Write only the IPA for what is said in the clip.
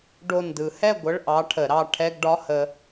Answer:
ɖo˧˩ndɯ˨˩˦hɛ˥˨ ɡʷə˧˥˧ɭʔɑ˧˥ʈʰə˨˩˦ ɾɑ˧ ʈʰɛ˧˥˧ɡɖɒ˧˥˧hə˧

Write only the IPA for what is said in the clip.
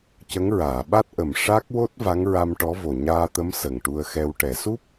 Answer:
cə˧˥ŋɹaː˨˩˨ ɓa˦˥t̚ʔə˨˩m ʂa˦˥k̚wo˦˥t̚ va˧˥ŋɹa˧m ʈɔ˧˥vo˨˩ ɲaː˧t̪ə˧˥m sə˨˩ŋʈu˧ə̯xɛ˧w ʈɛ˨˩˨su˦˥p̚

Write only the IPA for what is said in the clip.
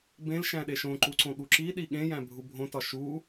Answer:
bẽl ʃæ̃ɗeʃõǃu ǀõɠuǁiɗi ɠẽjæ̃ bʱubʱõtɒ ʃu

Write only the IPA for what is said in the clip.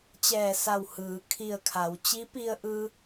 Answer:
t͡ɕɛː˧˩sa˧˩w hɯː˩˧kʰi˧˩ə̯kʰa˩˧w t͡ɕi˧˥pi˧ə̯ʔɯː˧

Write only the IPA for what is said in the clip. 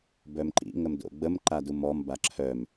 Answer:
bœmǃḭ ŋəmdo̰ɡ͡bəm ǃadumɔm baǁʰœm

